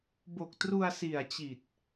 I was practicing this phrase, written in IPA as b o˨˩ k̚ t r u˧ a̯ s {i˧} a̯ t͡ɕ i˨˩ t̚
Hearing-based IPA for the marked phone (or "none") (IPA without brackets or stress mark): i˨˩